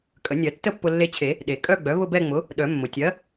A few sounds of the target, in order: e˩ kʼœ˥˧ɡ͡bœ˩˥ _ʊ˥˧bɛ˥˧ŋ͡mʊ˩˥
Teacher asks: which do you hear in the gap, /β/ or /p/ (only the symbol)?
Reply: β